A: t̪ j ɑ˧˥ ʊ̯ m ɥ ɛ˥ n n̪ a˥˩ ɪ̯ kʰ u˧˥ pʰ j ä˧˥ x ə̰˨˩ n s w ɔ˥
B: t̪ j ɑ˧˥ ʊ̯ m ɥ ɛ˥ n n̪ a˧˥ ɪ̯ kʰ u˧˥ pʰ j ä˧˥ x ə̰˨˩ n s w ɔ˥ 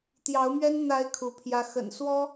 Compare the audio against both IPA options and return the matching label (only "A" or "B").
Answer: B